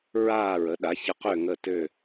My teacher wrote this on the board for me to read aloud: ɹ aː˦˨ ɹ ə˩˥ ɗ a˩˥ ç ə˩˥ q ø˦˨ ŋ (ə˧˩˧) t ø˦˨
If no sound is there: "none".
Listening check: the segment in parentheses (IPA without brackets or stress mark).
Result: ə˦˨